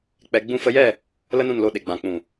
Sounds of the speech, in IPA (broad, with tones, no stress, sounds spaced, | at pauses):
k͡p ɛ˧ ɡ͡b ũ˧ f ə˧ j ɛ˦˨ | l ə˦ n ũ˦˨ n l o˧ ɗ e˨ ɡ͡b ã˨ k͡p ũ˨